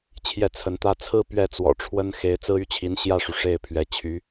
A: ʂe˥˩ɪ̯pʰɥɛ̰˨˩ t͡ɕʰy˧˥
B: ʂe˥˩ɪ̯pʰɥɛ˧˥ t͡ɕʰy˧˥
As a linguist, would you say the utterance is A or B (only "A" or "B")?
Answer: B